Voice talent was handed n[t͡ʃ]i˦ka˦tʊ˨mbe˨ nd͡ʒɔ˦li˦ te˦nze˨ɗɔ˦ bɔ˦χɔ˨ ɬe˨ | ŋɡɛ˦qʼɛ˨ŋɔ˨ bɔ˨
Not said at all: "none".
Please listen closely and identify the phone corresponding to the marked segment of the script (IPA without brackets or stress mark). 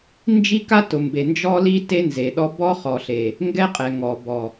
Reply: d͡ʒ